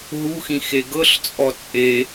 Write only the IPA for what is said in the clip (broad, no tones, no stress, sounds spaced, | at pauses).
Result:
ɦ u x ĩ x e ɡ ɤ ɬ t͡sʼ ɔ t͡sʼ e